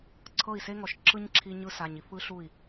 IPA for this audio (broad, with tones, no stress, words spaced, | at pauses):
ǀʰɤ˦˨i̯se˦ŋɔ˨ʃ ǁɯ˦ɲǁʰi˧ ɲɯ˧sa˨ɲ i˧fɯ˦ɬu˦˨i̯